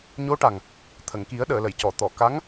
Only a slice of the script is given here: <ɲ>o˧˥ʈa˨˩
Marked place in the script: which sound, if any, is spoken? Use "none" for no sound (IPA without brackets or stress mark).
ɲ